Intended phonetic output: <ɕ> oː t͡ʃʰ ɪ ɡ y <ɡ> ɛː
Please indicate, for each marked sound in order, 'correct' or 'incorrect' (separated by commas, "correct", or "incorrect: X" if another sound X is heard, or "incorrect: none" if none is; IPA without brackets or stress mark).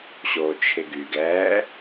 correct, correct